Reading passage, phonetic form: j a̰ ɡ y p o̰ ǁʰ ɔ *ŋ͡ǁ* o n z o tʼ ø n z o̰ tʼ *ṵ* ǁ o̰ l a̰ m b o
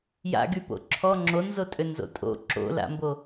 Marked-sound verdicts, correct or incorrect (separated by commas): correct, incorrect